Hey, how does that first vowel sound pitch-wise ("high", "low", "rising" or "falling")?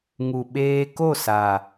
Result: low